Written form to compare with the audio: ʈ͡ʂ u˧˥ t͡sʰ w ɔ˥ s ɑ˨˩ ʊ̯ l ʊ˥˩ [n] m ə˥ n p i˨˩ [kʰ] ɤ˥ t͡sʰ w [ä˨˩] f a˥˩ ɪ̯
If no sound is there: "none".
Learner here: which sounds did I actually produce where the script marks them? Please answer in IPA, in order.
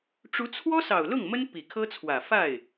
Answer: ŋ, kʰ, ä˨˩

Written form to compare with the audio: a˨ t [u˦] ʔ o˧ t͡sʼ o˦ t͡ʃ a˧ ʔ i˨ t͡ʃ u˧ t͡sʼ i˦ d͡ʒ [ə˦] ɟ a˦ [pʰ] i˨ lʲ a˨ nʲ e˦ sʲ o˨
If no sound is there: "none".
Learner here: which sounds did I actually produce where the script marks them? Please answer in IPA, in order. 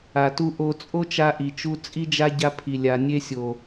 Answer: u˧, a˦, pʰ

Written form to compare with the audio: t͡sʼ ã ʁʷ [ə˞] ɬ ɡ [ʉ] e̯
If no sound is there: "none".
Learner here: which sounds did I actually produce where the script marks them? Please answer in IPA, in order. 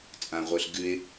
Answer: ə˞, ʉ

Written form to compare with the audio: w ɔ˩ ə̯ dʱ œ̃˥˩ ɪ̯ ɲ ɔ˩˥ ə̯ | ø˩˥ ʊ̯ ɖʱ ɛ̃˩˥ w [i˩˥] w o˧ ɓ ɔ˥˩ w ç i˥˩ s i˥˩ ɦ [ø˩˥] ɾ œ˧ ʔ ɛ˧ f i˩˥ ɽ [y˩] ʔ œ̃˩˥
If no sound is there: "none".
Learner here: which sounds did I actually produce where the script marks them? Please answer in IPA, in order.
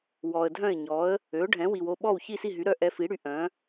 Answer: i˩, y˩˥, y˩˥

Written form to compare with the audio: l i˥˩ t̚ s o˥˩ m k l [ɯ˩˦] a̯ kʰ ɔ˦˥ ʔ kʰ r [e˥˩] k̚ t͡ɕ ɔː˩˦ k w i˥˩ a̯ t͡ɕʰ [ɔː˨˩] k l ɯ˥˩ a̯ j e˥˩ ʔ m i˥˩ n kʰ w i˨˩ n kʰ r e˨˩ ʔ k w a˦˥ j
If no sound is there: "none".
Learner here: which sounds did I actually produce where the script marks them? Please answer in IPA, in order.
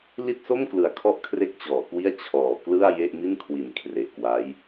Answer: ɯ˩˦, e˥˩, ɔː˩˦

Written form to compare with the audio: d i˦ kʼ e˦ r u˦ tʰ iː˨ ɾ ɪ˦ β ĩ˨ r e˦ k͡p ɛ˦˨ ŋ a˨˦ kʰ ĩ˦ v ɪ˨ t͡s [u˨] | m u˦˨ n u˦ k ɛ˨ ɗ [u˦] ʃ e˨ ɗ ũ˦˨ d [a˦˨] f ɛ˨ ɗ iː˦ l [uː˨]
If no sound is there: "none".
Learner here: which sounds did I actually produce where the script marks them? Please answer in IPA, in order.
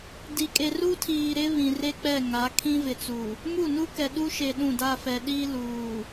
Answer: u˨, u˦, a˦˨, uː˨

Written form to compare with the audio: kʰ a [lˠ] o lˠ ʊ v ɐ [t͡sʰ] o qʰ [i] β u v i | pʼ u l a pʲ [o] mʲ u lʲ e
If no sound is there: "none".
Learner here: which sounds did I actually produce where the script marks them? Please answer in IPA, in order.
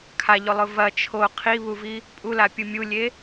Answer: ʎ, t͡ʃʰ, i, u

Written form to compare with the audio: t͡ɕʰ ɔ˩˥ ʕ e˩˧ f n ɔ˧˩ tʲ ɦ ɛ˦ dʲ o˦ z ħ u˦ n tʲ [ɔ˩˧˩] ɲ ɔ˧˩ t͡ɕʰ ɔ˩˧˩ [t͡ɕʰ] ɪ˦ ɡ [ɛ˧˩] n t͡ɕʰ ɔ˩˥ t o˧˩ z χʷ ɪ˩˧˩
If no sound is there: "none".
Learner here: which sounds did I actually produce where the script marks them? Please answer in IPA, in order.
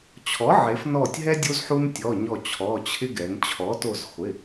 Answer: ɔ˩˧˩, t͡ɕʰ, ɛ˩˧

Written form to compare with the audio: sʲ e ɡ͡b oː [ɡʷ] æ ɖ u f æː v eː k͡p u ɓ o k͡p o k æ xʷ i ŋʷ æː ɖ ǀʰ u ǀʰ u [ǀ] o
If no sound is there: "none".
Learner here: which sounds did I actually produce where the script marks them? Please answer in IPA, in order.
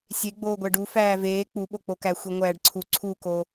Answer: ɡʷ, k

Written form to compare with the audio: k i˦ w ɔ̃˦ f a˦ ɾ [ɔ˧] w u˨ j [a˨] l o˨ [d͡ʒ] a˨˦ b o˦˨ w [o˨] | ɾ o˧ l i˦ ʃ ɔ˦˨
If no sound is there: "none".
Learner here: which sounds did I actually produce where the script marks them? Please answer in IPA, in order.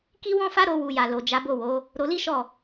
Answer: o˧, a˨, d͡ʒ, o˨˦

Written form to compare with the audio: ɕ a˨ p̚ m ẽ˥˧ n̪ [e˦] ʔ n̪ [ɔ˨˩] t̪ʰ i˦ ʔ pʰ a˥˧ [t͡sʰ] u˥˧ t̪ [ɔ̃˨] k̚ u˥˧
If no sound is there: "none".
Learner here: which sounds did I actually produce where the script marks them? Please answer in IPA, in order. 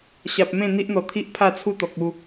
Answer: i˦, ɔ˨˩, t͡sʰ, ɔ˨

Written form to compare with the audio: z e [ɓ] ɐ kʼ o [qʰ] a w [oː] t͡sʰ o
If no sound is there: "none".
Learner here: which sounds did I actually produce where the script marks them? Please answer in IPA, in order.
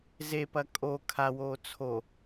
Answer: p, kʰ, oː

